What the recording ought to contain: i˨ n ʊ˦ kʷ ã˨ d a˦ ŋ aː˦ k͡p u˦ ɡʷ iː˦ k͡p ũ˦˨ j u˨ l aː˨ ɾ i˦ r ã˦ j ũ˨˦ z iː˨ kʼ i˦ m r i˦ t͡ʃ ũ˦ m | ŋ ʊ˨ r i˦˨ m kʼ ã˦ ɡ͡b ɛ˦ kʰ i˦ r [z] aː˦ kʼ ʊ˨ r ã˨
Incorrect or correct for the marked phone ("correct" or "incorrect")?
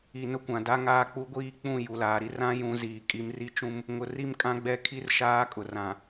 incorrect